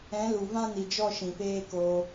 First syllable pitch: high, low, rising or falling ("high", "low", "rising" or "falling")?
rising